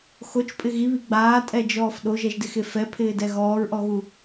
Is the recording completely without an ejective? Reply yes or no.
no